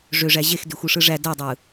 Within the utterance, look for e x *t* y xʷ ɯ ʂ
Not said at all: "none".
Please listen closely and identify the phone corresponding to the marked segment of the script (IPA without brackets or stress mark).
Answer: d